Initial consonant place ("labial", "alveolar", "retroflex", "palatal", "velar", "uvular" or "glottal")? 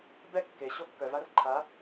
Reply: labial